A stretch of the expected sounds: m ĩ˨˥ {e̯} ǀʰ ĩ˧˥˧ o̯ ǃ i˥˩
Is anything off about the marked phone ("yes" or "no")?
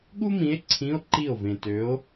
no